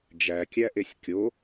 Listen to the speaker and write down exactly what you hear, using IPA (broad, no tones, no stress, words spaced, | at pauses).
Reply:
d͡ʒækʲæʔesʲ kʲo